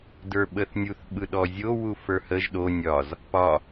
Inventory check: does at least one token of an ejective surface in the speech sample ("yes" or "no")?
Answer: no